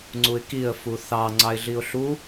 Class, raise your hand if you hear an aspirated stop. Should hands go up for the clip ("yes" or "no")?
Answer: no